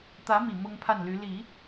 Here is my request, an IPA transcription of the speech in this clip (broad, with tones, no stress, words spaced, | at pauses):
t̪ä˧˥mi˨˩ mʊ˥ŋpʰa˥˩nly˧˥ li˨˩˦